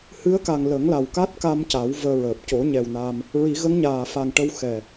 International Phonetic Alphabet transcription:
h ɨ˧˥ ə̯ k a˨˩ ŋ l ə˨˩˦ ŋ l a˨˩ w k a˦˥ t̚ k a˧ m c a˨˩˦ w v əː˧ ɹ əː˨˩ p̚ c o˨˩˦ ɲ ɛ˨˩ w n a˧ m | ɹ i˨˩˦ ɣ ə˧˥ ŋ ɲ aː˨˩ f a˨˩ ŋ ʈ ə˧ w x ɛ˨˩

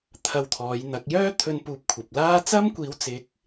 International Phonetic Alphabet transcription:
t̪ʰ ɐ˧ w t̪ʰ ɔː˨˧ j n̪ ɐ˨˥ k̚ j œː˥ t̪ʰ ɵ˧ n p uː˧ p̚ kʷʰ ɐ˨ p̚ l aː˥ t͡s ɐ˥ m kʷ iː˨˥ w t͡s ɪ˨˥ k̚

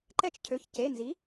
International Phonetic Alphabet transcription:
ǃ ɛ˦˨ t͡ʃ cʰ ø˩˧˩ ç c e˩˧˩ n z i˩˥

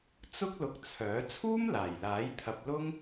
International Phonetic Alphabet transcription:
t͡s ʊ˥ k̚ l ʊ˧ k̚ t͡sʰ œː˨˥ t͡sʰ uː˥ m l aː˨˩ j l aː˨˥ j t̪ʰ ɐ˧ p̚ l ʊ˥ ŋ

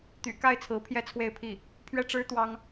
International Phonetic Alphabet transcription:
t̪ y̰˨˩ k a˥˩ ɪ̯ t͡sʰ ɹ̩˧˥ pʰ j ɛ˥ t͡sʰ w e˥˧ ɪ̯ pʰ i˥˩ | pʰ ɥ ɛ˥˩ ʈ͡ʂ ɻ̩˥ t̪ w ɑ˥ ŋ

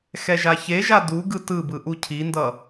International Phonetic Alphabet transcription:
x ɛ ʒ a ç e ʒ a d u ɡ ɯ t ɯ b ɯ ʔ u cʰ i n d ʌ

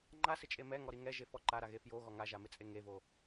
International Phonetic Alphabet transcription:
ŋ͡ǃ a s ɪ t͡ʃʼ e m ɛ ŋ ɔ ɾ i ŋ ɛ ʒ e f ɔ ǃ a ɾ a ɣ e f j o ɣ ɔ ŋ a ʒ a m ɪ t͡sʼ e ŋ e v o

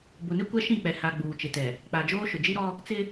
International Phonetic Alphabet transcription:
b ʊ˨ n ɪ˦ kʷ ɛ˦ ʃ ĩ˦˨ k͡p ɛ˨ h a˨ ɡ͡b uː˨ t͡ʃ ɪ˨ t ɛ˨ | k͡p a˨ d͡ʒ oː˦ ʃ ʊ˨ d͡ʒ i˦ ɾ ɔ˦ | t͡s ɪ˦

